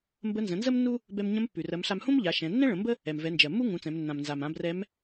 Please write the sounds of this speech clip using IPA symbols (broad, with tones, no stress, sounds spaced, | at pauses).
m b ə˧˥ n z ə̃˩˧ n z ə˥ m nː u˥ | b ɛ˧ m ɲ ə̃˧˥ m pː ʉ˩ r ɜ˩˧ m ɬ a˧ m h ũ˥ m ʎ a˩˧ ʃ ɛ̃˩˧ nː ɛ̃˥ ɭ ə̃˩˧ m b ə˥ | ɛ˩ m v ɛ˩˧ n d͡ʒ ɜ˩ mː u˥ ŋ ũ˩˧ t͡s ɛ̃˩˧ m nː ã˩ m n z a˩ m ã˩˧ b r ɛ˧˥ m